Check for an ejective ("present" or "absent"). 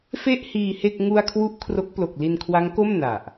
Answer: absent